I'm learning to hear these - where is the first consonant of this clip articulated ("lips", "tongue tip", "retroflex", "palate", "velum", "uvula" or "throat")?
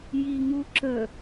palate